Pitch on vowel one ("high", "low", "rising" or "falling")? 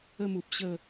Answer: falling